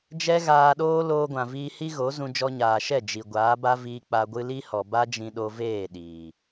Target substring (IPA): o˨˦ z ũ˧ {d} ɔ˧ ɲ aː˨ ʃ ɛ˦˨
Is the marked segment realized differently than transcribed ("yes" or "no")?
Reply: yes